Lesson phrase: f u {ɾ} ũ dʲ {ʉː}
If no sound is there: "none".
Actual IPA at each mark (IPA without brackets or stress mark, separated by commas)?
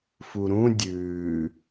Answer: ɾ, ʉː